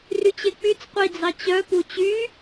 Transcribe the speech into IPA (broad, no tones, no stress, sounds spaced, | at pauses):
r y t͡ɕ e k͡p y t͡s qʷ i d͡z ɑ t͡ɕ œ p u t͡ɕ y